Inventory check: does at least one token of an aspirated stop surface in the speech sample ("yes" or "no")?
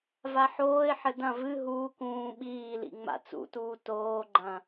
no